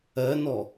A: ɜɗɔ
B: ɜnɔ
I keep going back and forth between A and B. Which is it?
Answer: B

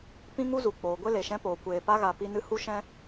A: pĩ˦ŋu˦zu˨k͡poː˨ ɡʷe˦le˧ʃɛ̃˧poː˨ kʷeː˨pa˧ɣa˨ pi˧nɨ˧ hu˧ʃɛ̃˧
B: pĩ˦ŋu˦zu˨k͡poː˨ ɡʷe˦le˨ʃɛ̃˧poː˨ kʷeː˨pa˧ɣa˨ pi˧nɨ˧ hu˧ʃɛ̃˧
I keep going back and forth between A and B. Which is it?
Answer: B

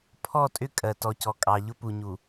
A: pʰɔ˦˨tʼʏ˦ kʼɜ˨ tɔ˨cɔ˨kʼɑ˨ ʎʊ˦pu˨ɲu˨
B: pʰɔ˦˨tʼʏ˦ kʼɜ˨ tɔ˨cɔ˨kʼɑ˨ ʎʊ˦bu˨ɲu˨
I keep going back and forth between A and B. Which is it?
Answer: A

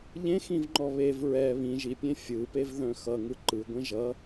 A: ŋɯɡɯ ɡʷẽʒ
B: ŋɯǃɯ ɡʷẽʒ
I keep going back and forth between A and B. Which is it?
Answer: B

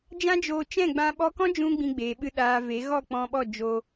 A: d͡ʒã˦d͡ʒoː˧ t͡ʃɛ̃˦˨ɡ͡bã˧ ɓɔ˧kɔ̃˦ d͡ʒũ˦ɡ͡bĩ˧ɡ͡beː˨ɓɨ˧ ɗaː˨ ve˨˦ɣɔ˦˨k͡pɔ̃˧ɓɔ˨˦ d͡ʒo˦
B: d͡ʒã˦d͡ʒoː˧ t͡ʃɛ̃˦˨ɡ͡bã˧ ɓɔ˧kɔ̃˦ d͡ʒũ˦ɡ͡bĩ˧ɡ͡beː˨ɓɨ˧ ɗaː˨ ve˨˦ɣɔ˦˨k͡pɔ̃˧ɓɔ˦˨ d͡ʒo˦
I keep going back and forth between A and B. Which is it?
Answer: B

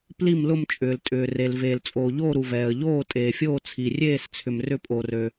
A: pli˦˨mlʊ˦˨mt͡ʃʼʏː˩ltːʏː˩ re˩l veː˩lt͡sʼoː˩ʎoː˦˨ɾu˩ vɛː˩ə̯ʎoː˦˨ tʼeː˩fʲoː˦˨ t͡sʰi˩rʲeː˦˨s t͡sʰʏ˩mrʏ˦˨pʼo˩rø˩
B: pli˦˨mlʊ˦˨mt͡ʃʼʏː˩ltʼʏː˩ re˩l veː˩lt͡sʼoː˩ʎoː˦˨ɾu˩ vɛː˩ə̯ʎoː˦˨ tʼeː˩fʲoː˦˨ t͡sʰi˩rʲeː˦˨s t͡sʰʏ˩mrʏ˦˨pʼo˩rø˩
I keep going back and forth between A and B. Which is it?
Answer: B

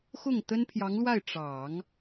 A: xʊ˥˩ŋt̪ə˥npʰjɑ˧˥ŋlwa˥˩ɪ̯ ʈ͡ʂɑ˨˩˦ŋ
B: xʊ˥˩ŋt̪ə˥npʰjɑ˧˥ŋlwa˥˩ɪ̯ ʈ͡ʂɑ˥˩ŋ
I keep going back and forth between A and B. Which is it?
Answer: A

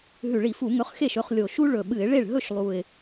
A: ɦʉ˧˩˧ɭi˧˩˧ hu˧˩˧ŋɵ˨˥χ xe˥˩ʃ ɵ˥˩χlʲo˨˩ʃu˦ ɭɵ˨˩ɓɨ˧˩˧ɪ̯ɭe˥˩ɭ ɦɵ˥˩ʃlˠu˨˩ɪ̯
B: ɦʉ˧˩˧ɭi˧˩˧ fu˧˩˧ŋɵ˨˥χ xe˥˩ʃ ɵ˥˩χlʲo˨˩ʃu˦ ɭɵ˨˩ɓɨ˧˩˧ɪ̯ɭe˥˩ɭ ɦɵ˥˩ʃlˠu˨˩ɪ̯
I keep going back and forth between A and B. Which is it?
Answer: B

